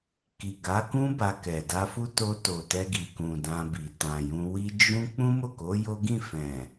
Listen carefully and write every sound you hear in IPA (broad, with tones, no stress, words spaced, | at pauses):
ki˨ɡa˨˦kũ˦ ba˧kɛ˨ da˧fu˦ to˧ to˨tɛ˧ɡi˨kũ˨ dã˧bi˨ tã˨jũ˧wi˦ d͡ʒũ˦ k͡pũ˦mo˦˨ko˨˦ jo˦ ɡĩ˦˨fɛ̃˨